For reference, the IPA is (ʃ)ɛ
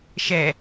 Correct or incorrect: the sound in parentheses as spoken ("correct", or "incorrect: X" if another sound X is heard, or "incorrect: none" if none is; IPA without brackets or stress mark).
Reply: correct